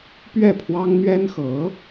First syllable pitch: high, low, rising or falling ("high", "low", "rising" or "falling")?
falling